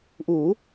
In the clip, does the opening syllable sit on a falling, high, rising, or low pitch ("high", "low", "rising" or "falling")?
rising